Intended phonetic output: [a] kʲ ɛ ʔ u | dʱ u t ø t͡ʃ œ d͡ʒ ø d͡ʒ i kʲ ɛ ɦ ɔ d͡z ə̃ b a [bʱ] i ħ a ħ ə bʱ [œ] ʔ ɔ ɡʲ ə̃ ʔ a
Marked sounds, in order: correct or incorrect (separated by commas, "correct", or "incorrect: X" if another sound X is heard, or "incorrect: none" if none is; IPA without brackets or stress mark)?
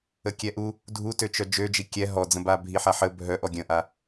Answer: incorrect: ə, correct, correct